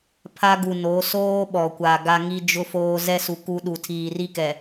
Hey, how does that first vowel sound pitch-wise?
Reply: high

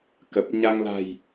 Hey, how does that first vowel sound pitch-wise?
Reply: low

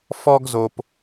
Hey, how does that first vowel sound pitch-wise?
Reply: high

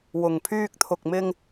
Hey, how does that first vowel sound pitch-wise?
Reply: low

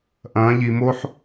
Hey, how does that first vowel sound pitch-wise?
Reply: rising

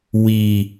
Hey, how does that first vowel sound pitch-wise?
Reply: low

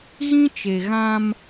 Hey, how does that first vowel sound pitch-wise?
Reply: high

